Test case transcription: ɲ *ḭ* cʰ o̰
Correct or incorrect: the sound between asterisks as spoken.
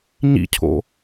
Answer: correct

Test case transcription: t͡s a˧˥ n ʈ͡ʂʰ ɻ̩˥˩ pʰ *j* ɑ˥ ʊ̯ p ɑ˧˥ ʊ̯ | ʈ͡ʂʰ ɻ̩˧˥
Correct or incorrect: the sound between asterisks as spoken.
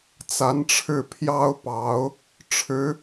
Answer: correct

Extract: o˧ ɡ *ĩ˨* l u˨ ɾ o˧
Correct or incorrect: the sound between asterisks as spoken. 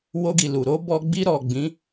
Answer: incorrect: i˨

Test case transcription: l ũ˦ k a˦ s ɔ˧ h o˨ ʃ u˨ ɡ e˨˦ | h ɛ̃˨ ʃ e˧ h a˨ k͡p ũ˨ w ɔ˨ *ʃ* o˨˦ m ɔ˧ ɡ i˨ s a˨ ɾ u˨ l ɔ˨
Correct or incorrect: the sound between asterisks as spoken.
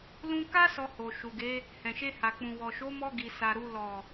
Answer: correct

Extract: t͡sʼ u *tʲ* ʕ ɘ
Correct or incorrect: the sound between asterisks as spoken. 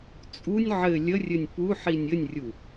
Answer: incorrect: nʲ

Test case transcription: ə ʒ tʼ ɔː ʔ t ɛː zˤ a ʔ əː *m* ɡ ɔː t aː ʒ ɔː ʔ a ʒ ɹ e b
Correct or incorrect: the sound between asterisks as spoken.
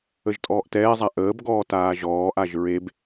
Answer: incorrect: b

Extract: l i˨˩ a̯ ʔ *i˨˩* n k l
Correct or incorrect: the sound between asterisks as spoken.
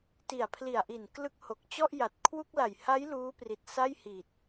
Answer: correct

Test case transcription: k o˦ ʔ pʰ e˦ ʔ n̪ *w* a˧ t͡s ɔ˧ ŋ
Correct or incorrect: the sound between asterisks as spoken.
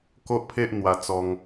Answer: correct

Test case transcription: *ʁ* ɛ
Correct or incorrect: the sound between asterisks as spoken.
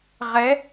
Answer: correct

